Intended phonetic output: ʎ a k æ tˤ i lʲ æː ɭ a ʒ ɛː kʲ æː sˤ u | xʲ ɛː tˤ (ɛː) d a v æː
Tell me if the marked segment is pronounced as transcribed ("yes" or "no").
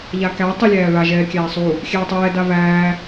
yes